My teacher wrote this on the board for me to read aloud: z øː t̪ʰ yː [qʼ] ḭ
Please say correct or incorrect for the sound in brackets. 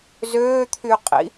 correct